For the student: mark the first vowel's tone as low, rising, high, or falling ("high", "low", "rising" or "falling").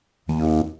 low